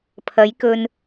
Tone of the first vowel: rising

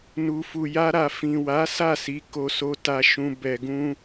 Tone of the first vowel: low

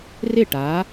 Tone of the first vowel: falling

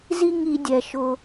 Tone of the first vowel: high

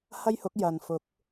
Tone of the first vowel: high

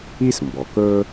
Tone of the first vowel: high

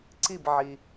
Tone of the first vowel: falling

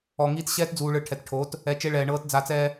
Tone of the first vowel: low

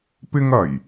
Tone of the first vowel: high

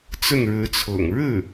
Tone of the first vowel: falling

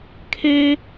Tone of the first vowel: high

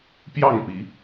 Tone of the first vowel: falling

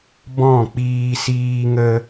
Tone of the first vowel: falling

